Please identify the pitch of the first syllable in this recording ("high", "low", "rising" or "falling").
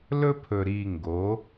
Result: high